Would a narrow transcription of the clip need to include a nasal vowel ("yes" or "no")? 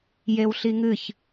no